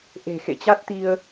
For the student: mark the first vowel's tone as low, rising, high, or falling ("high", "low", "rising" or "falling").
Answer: low